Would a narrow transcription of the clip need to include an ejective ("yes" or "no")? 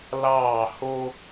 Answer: no